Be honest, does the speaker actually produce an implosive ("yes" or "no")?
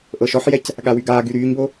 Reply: yes